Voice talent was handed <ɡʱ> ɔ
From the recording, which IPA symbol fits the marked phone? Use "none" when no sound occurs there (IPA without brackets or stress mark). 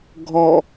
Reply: ɡʱ